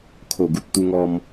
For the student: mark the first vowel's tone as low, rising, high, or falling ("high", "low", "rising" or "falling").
low